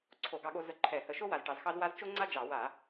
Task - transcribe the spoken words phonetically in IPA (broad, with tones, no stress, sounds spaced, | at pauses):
ǀʰ o˧˩˧ ɡ ɑ˧ ɠ o˧ z ə˧˩˧ ǃʰ ɛ˧˩˧ h ə˧˩˧ ʃ o˥ w a˧ z ʈ ɑ˧ z x ɑ˥ z w a˥ z t͡ʃ o˥ ŋ͡ǀ a˥ d͡ʒ ɑ˧˩˧ w a˧˩˧